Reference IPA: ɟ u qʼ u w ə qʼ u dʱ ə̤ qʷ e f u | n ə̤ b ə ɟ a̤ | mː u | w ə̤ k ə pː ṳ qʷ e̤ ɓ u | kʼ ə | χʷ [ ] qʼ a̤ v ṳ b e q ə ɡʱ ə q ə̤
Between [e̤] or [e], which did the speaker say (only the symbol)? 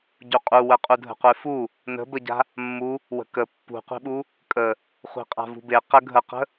e̤